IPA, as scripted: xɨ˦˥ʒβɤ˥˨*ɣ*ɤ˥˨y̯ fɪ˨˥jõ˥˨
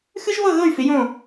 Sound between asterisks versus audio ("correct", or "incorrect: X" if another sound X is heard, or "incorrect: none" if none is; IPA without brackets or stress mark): correct